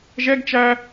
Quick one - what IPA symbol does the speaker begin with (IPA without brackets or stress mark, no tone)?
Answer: ʒ